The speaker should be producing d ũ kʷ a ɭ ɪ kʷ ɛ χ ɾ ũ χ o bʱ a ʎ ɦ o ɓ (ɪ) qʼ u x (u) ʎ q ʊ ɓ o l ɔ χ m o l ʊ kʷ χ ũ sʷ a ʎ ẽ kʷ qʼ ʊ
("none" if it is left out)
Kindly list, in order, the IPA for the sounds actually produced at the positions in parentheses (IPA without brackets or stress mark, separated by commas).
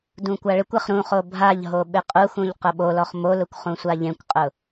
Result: ɪ, ũ